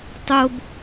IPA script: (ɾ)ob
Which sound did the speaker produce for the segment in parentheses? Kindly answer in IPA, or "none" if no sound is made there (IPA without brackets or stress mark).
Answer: tˤ